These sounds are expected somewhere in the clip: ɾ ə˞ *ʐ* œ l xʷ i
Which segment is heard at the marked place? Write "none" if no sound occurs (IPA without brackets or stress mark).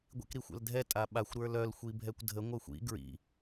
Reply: l